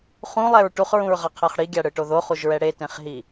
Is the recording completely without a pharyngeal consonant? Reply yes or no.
yes